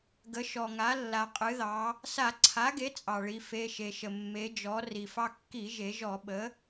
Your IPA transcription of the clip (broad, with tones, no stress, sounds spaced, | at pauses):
ɡ ə˩˥ ʃ ɔ˩ ŋ a˩˥ lː a˩ qʼ ɨ˩˧ ð ɑ˩˧ | s a˧˩˧ ǀʰ a˩˥ ɡ e˩˥ t͡sʼ ɑ˩ ɭ i˩˧ f e˩˧˩ ʃ e˩ ʃ ə˩ mː e˩˧ d͡ʒ ɔ˩˧ r i˩ f ɑ˧ kː i˧˩˧ ʒ e˩˧ ʒ ɔ˧˩˧ ɓ ə˩˥